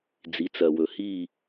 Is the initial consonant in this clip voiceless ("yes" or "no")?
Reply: no